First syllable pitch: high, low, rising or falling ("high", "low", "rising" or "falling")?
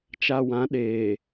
low